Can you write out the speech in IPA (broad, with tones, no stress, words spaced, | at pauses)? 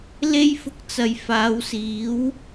le˥jfʊ˧k̚t͡sɐ˨j faː˨˧wsiː˨˥w